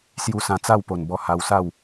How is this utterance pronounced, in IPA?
sju˧sã˧t͡sa˥˧w po˨˩nbɔ˧ ha˧wsa˥˧w

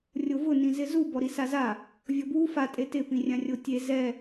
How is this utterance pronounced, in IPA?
rʲovʊ nĩzɪzu bɔɾisaza | vʲɔbwu fa tʼetɪ pĩrʲãrʲotʲe zɛ

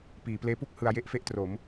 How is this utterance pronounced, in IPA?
piː˩˦pleː˦˥pu˥˩k̚ hɯ˧a̯je˥˩ʔfe˥˩ʔtro˩˦m

